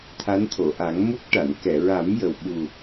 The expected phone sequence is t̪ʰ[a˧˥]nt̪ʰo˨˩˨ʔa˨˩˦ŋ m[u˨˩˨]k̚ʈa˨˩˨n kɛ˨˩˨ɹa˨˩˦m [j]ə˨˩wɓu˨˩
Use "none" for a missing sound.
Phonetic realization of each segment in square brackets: a˧˥, u˦˥, j

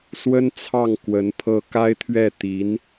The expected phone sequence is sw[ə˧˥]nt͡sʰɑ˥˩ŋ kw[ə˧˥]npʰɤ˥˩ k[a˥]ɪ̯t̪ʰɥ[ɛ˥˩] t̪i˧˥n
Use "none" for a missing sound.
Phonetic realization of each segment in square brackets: ə˥, ə˧˥, a˥, ɛ˥˩

